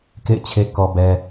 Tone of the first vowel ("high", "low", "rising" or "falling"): falling